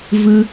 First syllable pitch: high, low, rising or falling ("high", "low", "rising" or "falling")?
high